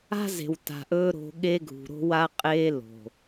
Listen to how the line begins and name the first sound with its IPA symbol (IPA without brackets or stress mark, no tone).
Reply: a̤